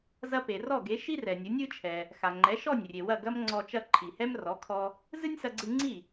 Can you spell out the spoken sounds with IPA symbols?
z ɐ˧ p e˩ r ɔ˥˩ ɡ e˩˥ ʃ i˥ r ɛ˩ nʲ ɨ˩˥ nʲ ɨ˩˥ t͡ʃʰ ɛ˩ | x a˩ ŋ͡ǃ ɛ˩˥ ʃ ɔ˥˩ nʲ rʲ e˩ w ɐ˥˩ ɡ ɐ˥ m ŋ͡ǀ ɔ˧ t͡ʃ ɐ˥˩ ǃʰ i˩ h ɛ˥ m r ɔ˩˥ kʰ ɔ˧ | z ɨ˥ nʲ s ɐ˧ ɡ͡ǀ ɨ˧ ŋ͡ǀ i˥˩

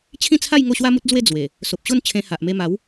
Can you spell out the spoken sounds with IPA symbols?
t͡ɕʰ ĩ˥˧ t͡sʰ a˥˧ j ŋ o˥˧ ɕ w a˦ m u˦ t̚ d͡z w e˥˧ d͡z w e˨˩ | s o˨ p̚ ɕ o˥˧ n t͡ɕʰ ẽ˧ h a˨ ʔ m e˧ m a˨˦ w

